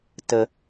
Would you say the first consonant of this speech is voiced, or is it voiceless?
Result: voiceless